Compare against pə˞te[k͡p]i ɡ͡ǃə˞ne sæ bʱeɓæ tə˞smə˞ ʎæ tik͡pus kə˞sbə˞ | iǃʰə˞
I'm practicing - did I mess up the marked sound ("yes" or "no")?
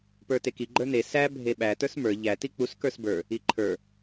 yes